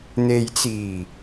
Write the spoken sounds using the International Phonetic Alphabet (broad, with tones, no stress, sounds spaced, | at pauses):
n̪ e˨ j t͡s iː˨˩